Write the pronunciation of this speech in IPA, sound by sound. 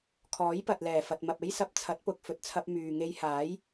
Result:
kʰ ɔː˨˥ j p ɐ˨ t̚ l ɛː˨˩ f ɐ˨ t̚ m ɐ˨ p̚ e˥ j s ɐ˧ p̚ t͡sʰ ɐ˨˥ t̚ p ʊ˨ k̚ f ɵ˨ t̚ t͡sʰ ɐ˧ p̚ m yː˨ ŋ e˧ j h aː˨˥ j

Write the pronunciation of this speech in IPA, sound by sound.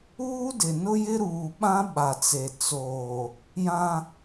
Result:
uː˦ d ɪ˨ n ʊ˦ j ɪ˦ ɾ uː˨ ɓ ã˦ ɓ a˨ t͡s e˨ t͡s oː˨ | j ã˦

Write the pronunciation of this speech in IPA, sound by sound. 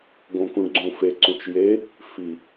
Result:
ɡ õ k ũ ɖ ɡ͡ǀ ũ f e ǀ ũ t͡ʃ j e | f i

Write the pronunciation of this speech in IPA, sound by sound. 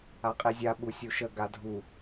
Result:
a qʼ i zʲ a ɓ u sʲ u ʃ ə ɡ a dʱ u

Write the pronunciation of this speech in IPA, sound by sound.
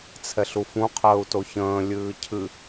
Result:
t͡sʰ ɛ ɬ u f ũ qʰ əː u̯ t o ç ə̃ː lʲ ɨː cʰ ɨ

